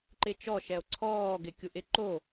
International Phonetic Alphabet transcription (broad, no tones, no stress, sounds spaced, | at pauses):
ǃ ɪ t͡ʃ ɔ ʃ ɛ o̯ ǀʰ ɔː ɡ ɪ kʲ u ʔ ɪ ǃ o